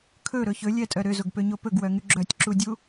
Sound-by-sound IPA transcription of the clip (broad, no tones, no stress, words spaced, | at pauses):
kʰɵɾɵ çɵlʲɛtʼœ ɾøzoɡpøɲo pɵɡwœŋy ɡ͡ǁœtʲǁudʲu